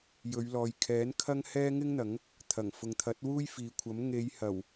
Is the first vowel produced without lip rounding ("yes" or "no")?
no